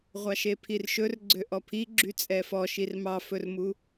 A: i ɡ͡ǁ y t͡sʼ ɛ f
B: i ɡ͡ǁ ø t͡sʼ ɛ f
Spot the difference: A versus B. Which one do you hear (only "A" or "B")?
A